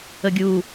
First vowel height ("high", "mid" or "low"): mid